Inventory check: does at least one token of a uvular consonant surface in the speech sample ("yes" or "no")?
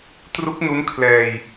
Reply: no